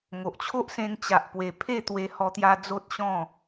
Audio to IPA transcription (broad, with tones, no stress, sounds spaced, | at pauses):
ŋ o˨ ʔ t͡ɕʰ o˦ ʔ s ẽ˧ ŋ t͡ɕ a˨ ʔ p w e˨˩ pʰ e˥˧ t̪ w e˧ h ɔ˧ t̪ j a˧ d͡z o˦ t̚ ɕ ɔ̃˥˧